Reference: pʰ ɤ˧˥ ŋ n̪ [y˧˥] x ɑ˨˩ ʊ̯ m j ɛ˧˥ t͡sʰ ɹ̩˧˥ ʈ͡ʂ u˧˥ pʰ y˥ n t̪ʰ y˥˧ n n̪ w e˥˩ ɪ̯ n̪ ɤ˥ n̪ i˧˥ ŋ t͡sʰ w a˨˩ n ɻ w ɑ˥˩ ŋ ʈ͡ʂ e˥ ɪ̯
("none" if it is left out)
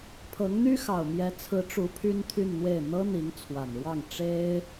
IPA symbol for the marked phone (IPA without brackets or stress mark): y˥